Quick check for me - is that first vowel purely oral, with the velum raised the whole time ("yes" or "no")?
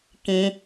no